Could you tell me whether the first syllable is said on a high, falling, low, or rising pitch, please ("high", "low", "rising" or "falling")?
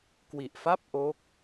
low